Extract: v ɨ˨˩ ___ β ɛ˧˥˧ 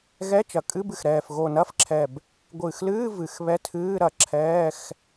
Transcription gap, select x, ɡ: x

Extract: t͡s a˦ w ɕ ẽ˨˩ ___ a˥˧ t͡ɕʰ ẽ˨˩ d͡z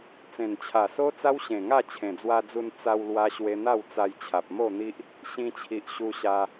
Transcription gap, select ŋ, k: ŋ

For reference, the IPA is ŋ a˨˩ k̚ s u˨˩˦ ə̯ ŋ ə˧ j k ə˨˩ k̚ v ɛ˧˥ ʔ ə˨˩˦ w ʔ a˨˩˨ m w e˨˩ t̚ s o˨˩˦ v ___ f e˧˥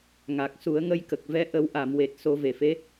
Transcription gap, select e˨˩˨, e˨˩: e˨˩˨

